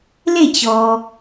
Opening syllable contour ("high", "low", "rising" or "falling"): falling